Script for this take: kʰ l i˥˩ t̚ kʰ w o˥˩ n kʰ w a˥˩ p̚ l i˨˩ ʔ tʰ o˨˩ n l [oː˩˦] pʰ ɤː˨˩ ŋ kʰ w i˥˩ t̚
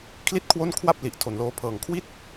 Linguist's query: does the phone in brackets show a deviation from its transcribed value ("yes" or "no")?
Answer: yes